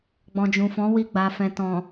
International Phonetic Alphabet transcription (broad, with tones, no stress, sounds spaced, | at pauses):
ɡ͡b ɔ̃˨ d͡ʒ ũ˨ f ɔ̃˨˦ w i˧ ɡ͡b a˨ f ɛ̃˨ t ɔ̃˨